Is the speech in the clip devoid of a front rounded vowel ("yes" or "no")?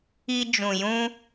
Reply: yes